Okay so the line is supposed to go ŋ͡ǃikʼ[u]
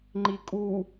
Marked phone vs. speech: correct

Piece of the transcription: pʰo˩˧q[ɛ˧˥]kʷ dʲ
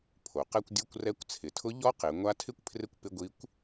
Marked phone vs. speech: incorrect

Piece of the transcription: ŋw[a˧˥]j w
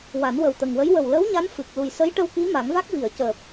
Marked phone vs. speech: incorrect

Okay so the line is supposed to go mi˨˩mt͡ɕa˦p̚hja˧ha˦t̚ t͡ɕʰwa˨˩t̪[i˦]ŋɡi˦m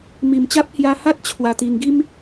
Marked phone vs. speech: incorrect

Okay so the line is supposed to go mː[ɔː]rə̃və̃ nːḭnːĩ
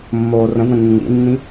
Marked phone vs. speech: incorrect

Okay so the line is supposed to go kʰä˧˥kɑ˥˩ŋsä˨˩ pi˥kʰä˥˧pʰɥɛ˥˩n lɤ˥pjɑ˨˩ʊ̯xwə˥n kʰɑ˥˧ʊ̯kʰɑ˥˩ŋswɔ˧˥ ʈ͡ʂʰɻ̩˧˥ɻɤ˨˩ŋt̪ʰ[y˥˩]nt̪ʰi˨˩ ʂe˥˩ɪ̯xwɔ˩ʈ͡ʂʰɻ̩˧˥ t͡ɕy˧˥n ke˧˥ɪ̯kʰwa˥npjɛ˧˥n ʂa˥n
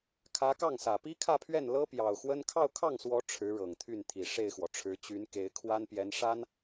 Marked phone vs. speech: correct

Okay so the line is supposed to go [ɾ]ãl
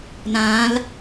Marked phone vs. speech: incorrect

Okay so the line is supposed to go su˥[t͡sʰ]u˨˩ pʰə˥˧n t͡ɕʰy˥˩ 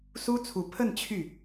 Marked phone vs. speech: correct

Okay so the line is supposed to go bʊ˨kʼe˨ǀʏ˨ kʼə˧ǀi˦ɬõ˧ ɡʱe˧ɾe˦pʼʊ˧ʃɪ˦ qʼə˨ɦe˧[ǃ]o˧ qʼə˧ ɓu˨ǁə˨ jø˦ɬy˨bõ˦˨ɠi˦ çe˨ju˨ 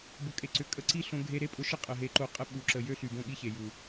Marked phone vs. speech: correct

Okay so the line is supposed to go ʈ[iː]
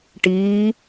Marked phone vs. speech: correct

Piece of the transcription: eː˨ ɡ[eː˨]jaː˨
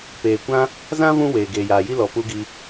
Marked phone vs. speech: correct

